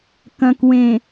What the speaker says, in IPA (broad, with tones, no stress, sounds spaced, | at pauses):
k ɐ̃˨ k w ẽ˨